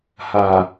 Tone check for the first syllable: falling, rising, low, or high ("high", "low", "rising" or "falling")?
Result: low